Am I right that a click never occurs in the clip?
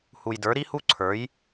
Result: no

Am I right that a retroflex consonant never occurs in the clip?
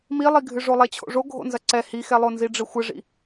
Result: no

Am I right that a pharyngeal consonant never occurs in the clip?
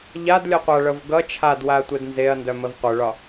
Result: yes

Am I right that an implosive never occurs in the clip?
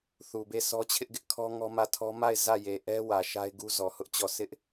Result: yes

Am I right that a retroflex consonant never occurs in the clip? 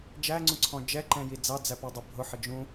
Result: yes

